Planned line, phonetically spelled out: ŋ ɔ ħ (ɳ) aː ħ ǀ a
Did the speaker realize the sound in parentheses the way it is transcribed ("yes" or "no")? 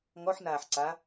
no